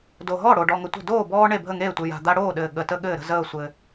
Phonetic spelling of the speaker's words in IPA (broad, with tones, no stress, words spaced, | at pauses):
do˨ɦɔ˥˩ ɽo˨ ɖɔ˨ŋə˨tʷə̤˥˩ doː˥˩bɔː˦ ɳe˥˩bʱə˥˩ŋeː˥˩tʷɘ˨ ja̤˨d̪a˦ɽoː˥˩ɗɘː˨ ɠə˨tə˦ ɠɘː˥˩ɾə̤˦zəː˥˩ sʷɘ˨